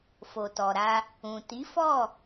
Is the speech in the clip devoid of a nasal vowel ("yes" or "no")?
no